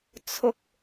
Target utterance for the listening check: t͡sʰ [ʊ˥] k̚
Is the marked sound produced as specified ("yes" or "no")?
yes